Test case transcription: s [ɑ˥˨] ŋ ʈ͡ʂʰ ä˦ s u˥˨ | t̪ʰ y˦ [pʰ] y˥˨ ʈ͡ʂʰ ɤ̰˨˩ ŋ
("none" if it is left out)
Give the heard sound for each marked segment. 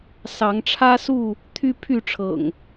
ɑ˨˦, pʰ

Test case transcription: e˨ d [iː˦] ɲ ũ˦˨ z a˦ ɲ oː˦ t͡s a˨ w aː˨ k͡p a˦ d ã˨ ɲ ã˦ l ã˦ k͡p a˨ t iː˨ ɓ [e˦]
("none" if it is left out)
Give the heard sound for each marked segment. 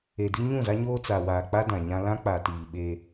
i˦, e˦

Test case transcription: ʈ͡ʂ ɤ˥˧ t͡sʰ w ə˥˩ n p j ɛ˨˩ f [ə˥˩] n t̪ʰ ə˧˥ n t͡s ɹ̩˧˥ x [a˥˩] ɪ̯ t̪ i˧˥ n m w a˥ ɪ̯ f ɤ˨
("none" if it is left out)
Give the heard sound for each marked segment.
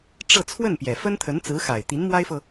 ə˥, a˨˩

